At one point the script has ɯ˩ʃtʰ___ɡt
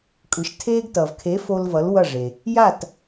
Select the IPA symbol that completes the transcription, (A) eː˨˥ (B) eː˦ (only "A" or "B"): B